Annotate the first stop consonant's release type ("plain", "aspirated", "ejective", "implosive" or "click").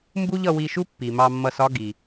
plain